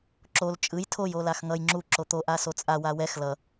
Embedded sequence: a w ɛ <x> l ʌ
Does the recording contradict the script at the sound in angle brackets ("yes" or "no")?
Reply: no